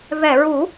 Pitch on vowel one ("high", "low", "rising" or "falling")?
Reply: low